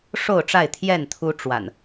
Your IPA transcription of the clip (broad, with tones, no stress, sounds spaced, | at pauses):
ʂ o˥˨ ʊ̯ ʈ͡ʂ a˥˨ ɪ̯ t̪ʰ j ɛ˥˨ n t̪ʰ u˦ ʈ͡ʂ w a̰˨˩ n